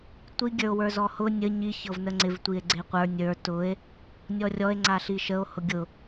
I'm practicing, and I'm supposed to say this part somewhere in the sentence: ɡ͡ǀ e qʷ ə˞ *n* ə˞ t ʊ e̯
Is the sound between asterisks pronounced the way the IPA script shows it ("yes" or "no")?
no